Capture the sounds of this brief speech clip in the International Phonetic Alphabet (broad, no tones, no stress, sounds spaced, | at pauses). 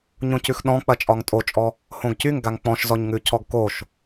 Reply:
ɲ õ c ʉ x ɗ ɔ̃ k͡p ɐ t͡ʃʼ ɒ ŋ tʼ o t͡ʃʼ ɔ | h õ ɡ c y ŋ ɡ a ŋ k͡p ɔ̃ ʃ z ɔ ɲ ŋ ʉ cʰ ɔ ɡ k o ʃ